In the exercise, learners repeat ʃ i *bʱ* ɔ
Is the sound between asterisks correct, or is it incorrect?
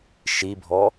correct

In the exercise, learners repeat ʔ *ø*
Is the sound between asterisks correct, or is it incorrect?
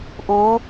incorrect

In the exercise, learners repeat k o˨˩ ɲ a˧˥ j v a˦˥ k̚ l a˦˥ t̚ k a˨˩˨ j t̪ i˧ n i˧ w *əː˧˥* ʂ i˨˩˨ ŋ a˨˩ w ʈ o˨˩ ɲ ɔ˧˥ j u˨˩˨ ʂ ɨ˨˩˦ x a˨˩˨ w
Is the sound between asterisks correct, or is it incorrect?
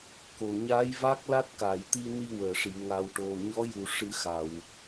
incorrect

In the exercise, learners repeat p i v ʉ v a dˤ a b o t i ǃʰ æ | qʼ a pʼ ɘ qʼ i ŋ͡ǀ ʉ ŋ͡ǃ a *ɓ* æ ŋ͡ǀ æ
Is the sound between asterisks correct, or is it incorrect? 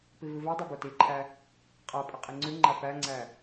incorrect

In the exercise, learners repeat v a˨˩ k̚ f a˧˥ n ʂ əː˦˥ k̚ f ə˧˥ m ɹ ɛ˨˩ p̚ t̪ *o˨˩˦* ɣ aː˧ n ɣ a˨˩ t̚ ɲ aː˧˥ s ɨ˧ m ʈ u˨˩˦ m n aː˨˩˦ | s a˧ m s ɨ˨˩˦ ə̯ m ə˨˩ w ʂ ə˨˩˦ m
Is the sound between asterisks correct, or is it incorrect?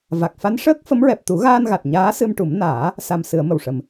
incorrect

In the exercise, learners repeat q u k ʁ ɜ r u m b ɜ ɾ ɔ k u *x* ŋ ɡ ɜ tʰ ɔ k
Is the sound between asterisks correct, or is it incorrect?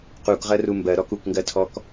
incorrect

